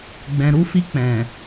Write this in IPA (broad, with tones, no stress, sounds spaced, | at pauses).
ɡ͡b ɛ̃˨ ɾ u˧ f i˧ k͡p ɛ̃˨